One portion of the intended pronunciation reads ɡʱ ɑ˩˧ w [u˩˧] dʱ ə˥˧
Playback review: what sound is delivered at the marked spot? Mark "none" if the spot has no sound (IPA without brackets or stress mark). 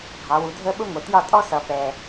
u˩˧